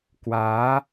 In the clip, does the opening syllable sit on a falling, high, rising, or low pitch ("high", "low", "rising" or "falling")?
rising